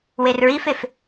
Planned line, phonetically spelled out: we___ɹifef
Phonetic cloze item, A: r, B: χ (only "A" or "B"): A